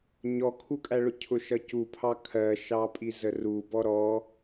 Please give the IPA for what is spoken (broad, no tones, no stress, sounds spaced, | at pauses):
ɲ ɔ kʰ u kʼ æ ɭ ʊ cʰ ʊ ʃ ʌ c u pʰ ɑ kʰ ɜ ʃ ɑ pʼ i z ə r u b ɔ ɾ ɔ